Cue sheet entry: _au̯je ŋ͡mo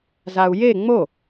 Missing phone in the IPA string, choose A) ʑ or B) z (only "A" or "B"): B